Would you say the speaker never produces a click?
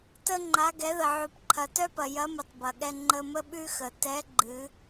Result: no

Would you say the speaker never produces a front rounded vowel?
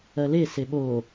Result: yes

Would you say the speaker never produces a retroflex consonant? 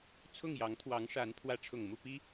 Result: no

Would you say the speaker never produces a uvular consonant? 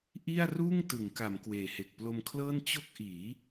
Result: yes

